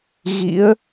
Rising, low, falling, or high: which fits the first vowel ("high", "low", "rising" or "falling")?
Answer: rising